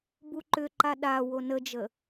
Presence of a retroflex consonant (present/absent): absent